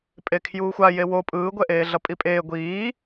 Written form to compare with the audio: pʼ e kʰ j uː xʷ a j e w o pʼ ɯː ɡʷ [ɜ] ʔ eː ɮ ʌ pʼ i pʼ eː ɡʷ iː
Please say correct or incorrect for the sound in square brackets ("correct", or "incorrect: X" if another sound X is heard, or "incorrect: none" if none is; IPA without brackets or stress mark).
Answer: incorrect: ɛ